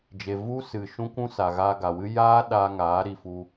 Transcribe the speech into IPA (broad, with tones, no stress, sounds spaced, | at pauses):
d͡ʒ e˨ v u˦ s ɨ˨ ʃ ũ˦ kʷ ũ˦ s a˨ ɣ aː˧ ɡ a˨ w ɨ˦ j aː˦ ɗ a˧ ŋ aː˨˦ ɾ i˨ f u˧